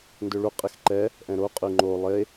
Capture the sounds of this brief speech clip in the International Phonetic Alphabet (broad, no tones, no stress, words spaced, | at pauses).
ndøɭu qʼɪxǃɛ | ʔɛ̃ɾo qʼyŋ͡ǃo lˠe